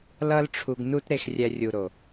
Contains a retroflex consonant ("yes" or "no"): yes